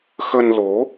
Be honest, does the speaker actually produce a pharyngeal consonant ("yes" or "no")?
no